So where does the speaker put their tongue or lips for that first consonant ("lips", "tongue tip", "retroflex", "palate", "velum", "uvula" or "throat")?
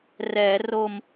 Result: tongue tip